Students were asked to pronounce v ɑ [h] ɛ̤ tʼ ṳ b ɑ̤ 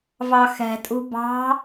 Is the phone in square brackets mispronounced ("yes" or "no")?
yes